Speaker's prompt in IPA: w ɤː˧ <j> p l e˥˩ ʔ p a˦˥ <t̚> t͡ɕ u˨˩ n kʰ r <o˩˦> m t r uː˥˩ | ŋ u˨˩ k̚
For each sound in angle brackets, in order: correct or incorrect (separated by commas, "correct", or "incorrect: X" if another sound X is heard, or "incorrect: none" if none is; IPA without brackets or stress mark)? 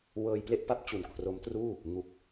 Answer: correct, incorrect: p̚, incorrect: o˦˥